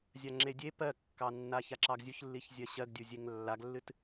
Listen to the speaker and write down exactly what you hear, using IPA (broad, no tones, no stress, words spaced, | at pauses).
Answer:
zʲaŋ͡ǁedʲe pɜkːɑnːa çaǁɑɡzʲuçlːiç zʲɜɕɜɡdʲuzʲeŋ lːaɡlːɨt